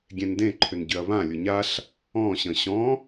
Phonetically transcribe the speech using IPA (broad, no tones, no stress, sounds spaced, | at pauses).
ɡʲ ẽ n d ẽ ǃʰ ʏ n ɟ ʏ ɐ̯ β ã lʲ ʊ ɲ a ɬ | ɔ̃ ɕ ə̃ ɕ ɔ̃